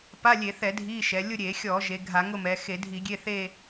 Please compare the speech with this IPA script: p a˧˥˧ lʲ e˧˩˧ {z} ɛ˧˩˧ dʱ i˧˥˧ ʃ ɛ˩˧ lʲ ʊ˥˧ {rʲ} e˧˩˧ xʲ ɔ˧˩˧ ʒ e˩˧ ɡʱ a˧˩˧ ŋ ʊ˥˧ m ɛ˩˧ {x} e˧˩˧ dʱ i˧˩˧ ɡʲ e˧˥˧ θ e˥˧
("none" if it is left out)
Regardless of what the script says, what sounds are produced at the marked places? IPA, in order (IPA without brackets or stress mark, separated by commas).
θ, ɾʲ, x